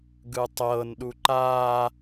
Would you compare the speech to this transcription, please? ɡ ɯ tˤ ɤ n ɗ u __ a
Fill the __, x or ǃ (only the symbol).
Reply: ǃ